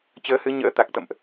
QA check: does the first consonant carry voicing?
no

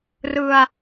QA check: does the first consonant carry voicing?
yes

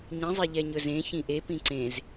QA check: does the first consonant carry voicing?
yes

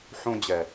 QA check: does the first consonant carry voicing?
no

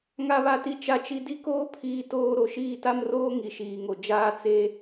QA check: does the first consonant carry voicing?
yes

